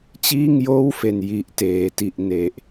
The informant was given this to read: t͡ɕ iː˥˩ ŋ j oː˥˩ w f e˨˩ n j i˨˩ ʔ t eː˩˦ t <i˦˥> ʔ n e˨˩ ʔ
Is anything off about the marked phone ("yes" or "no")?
yes